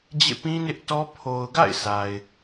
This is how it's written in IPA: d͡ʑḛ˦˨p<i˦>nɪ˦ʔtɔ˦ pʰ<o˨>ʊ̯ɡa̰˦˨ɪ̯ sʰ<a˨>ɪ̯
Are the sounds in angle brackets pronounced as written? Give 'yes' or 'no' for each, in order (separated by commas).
no, yes, yes